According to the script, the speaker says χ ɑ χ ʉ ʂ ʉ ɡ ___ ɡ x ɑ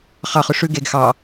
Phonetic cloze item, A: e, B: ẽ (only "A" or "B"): A